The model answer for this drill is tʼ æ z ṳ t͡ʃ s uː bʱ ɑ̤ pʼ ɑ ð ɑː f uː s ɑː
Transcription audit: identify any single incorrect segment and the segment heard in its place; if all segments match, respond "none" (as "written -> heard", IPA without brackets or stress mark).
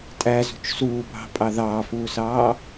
none